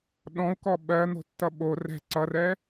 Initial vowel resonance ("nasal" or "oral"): nasal